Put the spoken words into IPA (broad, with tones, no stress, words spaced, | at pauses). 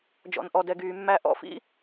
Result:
d͡ʒɔ̰˩nʔɔ˩dɛ˩ɡyː˩ mːæ˧ ʔɔ̰˥fḭ˥